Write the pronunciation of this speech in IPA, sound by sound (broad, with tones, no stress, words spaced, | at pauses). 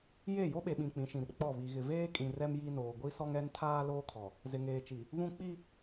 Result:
je˦˨ jo˦ɓe˨ɓĩ˨ k͡pĩ˨˦ʃĩ˨r k͡pɔ˦˨βi˨ɣɪ˨ veː˦kʼĩ˨ rɛ˦mji˦noː˨ ɡʷi˦sɔ˦ŋɛ˦ntʰaː˦ loː˦kʰɔ˨ | zɪ˨ŋeː˨t͡ʃi˨ | βũ˦ k͡pi˦